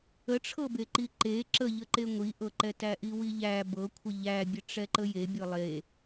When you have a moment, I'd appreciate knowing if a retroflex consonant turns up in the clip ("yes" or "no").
yes